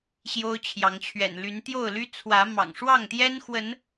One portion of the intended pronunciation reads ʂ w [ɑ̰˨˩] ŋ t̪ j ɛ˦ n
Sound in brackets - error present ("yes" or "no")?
yes